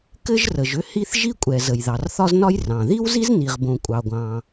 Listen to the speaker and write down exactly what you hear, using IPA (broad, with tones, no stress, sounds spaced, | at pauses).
k ɘ˥ ʒ r ə˩ ʒ ʏ˥ h i˥ θ ʒ i˥ kʷʼ ɛ˩ z ə˩ j ð ɑ˩ r θ ɒ˥ z n ɒ˥ j r ɑ̃˩ ð i˥ w z i˥ z n i˩ ʁ b õ˩ kʷʼ ɑ˩ ɡʷ ɑ̃˩